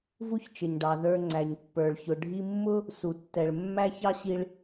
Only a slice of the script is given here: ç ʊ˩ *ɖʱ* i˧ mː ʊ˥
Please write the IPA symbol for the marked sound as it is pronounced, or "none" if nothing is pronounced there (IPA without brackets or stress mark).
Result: ɖʱ